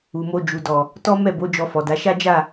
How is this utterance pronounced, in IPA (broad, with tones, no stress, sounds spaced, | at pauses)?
u˨ m o˧ d͡ʒ u˨ d ɔ˨ | t ɔ˦ m ɛ˦˨ b o˨˦ d͡ʒ ɔ˧ f ɔ˨ d a˨˦ ʃ a˦ d͡ʒ a˦˨